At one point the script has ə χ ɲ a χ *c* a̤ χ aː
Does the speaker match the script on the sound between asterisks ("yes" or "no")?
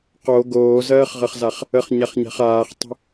no